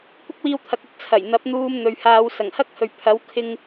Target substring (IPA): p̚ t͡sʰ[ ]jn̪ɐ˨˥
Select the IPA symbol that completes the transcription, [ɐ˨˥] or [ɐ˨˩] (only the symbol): ɐ˨˩